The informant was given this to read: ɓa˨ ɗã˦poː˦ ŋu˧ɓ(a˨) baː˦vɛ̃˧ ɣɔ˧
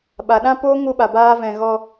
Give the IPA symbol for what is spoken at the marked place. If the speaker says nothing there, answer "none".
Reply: a˨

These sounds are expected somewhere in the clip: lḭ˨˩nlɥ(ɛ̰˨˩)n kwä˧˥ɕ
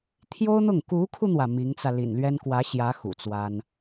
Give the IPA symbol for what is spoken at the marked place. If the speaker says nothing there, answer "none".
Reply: ɛ˥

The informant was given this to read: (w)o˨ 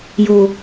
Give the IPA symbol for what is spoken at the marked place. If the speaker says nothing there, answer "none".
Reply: j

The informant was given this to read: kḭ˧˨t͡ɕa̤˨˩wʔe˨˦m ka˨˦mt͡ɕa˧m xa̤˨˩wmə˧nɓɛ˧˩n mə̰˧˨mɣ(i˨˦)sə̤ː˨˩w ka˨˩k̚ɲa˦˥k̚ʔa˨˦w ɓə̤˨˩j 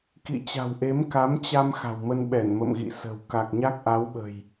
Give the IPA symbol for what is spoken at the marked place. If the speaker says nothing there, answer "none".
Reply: ḭ˧˨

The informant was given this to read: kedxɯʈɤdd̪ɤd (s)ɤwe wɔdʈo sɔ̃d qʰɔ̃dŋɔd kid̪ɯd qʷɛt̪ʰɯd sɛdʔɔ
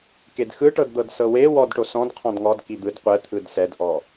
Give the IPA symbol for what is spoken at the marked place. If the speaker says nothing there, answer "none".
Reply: s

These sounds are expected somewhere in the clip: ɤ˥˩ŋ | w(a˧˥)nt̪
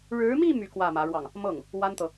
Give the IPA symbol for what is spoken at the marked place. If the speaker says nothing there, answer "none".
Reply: a˥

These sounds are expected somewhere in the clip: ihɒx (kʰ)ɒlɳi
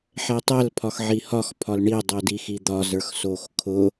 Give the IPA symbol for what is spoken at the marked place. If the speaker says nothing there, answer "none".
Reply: pʰ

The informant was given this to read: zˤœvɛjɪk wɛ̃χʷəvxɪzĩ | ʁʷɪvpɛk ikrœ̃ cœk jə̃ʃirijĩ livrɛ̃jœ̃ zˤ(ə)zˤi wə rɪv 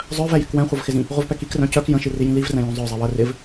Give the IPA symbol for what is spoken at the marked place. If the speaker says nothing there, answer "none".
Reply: œ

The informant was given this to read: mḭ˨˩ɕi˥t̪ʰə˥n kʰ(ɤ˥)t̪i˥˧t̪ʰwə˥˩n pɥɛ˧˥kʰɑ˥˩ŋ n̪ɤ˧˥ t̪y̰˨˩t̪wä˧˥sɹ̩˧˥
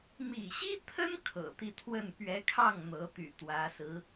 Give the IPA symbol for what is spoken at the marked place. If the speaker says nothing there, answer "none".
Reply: ɤ̰˨˩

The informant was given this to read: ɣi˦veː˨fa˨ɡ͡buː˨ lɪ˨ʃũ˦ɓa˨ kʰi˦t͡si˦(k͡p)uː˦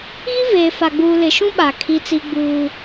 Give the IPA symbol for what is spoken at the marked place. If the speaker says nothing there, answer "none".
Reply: ɡ͡b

